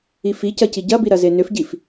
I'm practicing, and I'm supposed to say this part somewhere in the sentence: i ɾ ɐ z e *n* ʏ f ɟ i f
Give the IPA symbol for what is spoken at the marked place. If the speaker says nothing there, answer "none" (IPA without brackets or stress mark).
n